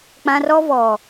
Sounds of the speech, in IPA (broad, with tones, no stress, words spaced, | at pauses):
k͡pã˦rɔ˦vɔ˨